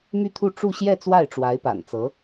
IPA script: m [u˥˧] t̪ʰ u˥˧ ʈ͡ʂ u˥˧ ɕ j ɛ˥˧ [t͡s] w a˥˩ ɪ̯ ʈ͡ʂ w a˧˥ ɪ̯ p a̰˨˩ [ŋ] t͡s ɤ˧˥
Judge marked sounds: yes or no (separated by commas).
no, yes, no